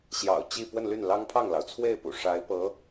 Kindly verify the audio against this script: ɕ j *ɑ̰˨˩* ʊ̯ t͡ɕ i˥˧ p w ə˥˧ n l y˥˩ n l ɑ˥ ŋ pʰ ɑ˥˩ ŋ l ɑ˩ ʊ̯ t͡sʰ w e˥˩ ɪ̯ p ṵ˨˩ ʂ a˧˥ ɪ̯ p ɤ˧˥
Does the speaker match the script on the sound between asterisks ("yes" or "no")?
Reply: yes